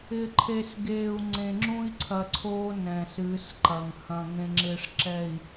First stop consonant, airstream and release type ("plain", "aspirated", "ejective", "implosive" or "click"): click